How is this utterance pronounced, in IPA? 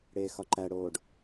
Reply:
ɽ eː x ɒ ǃ æ ɽ oː ɖ

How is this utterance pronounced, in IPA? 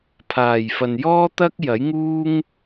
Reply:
pʰ aː˨˩ j f ɐ˨ n j ɔː˥ t̪ ɐ˥ k̚ j ɐ˨˥ j ŋ uː˥ ŋ

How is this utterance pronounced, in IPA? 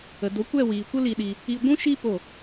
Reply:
ə˨ d o˨˦ kʷ ɛ˦˨ w iː˨ kʷ ə˦ l i˧ ɗ i˧ | i˧ ɡʷ ũ˦ ʃ i˦ p o˦˨

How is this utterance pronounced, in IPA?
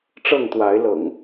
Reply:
ʈ͡ʂ ɤ˥˨ ŋ t̪ w a˨˦ ɪ̯ l ɤ̰˨˩ ŋ

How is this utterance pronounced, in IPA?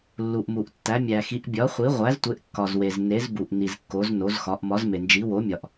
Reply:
lː u˨ ʔ m u˨ ʔ tː æ˨˥ mʲ æ˨ x i˨˥ ʔ bʲ ɒ˨˥ χʷ i˨˥ ʁʷ æ˨˥ z tʷ e˨˥ ʔ kː ɒ˨ z w e˨ z n e˨˥ z b u˨ ʔ n i˨ z kː o˨˥ z n o˨˥ z x ɒ˨˥ ʔ m ɒ˨˥ z m e˨ n d͡ʒ i˨˥ w o˨˥ mʲ ɒ˨ ʔ

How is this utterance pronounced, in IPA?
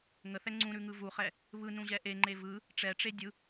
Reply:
ŋ ə θ ɛ ŋ͡ǀ ũ ɾ ʉ ŋ ɯ v u χ ɛ | β ɯ n ũ ʑ ɛ ʔ e ŋ͡ǃ e v ɯ | ʈ͡ʂ ɛ ʈ͡ʂ e dʲ ɯ

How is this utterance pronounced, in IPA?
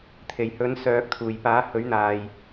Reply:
t̪ʰ e˨˩ j h ɵ˨˥ n s œː˨ k̚ t̪ʰ uː˨˩ j p aː˨˥ h ɵ˨˥ ɥ n̪ aː˨ j

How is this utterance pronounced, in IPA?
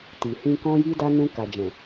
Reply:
t i˨ h ĩ˧ k ɔ̃˧ j i˧ d a˧ n ũ˧ k a˨ d͡ʒ ɛ̃˨

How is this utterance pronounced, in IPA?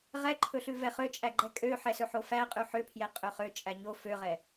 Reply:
ʁ ɛ ǃʰ ɵ ɬ ʉ v ɛ χ ø t͡ʃʼ æ ɡ͡ǃ ɛ kʼ ø ħ ɛ s ɵ ħ o f æ qʼ ʉ ħ ø pʰ j ɛ qʼ ø χ ø t͡ʃʼ æ ɲ o f ø ʁ ɛ

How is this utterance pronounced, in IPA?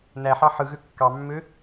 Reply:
n æ ħ ɑ ħ ɯ ɣ ø kː ɑ mː ø

